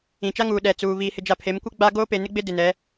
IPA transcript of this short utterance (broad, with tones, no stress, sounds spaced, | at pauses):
ĩ˨ t͡ʃ a˦ ŋ uː˨ ɗ ɛ˨ t͡s uː˨ β iː˨ h ɪ˨ d͡ʒ a˨ pʰ e˨˦ m kʷ e˦ ɡ͡b a˦ ɡ oː˦ p e˨ n ɪ˦ ɡ͡b ɪ˦ d ɪ˨ n ɛ˨˦